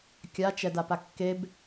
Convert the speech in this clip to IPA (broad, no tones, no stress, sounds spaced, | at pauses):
kʲ a t͡ʃ ɛ d a p a kː e b